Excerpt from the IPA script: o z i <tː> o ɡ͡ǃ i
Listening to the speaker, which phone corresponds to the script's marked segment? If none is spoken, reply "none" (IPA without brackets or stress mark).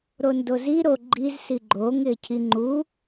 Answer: ɾ